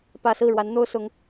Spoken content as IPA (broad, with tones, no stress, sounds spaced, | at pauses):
p ä˥˧ s ɹ̩˥˩ ɻ w a˧˥ n n̪ o˥ ʊ̯ s ʊ˧˥ ŋ